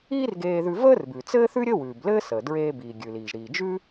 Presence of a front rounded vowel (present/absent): absent